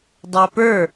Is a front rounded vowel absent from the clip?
yes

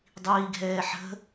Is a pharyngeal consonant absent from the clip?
no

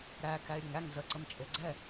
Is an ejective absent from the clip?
no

